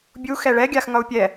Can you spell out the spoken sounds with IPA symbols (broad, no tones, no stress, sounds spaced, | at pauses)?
bʲ u x ɛ ɭ ɛ ɡʲ a x ŋ ʌ u̯ pʲ ɛ